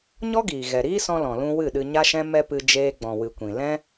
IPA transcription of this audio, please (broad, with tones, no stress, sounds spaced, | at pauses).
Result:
ɲ ɔ˦ ɡ iː˨ ɣ ɛ˨ ɾ iː˦ s ɔ̃˧ l ɔ̃˨ l ũ˧ w ɨ˦˨ ɗ ɨ˧ ɲ a˦ ʃ ɛ̃˦ m ɛ˦ p ɨ˧ d͡ʒ eː˦ ɡ͡b ɔ̃˨ w ɨ˨ kʷ ĩ˨ l ɛ̃˦